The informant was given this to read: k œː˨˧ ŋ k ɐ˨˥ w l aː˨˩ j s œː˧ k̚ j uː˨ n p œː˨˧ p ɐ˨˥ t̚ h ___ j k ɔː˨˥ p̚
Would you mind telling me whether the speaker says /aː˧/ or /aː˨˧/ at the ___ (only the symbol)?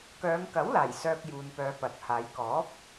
aː˨˧